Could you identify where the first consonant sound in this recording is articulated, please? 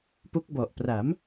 labial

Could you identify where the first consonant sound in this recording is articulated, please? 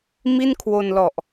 labial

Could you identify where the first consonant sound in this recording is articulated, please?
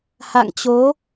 glottal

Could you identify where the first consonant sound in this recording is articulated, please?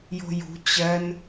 palatal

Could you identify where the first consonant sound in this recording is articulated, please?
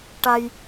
retroflex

